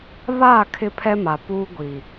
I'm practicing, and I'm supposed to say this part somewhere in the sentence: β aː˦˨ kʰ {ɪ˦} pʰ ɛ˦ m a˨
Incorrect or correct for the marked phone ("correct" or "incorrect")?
correct